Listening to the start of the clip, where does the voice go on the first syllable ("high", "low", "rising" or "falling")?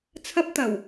high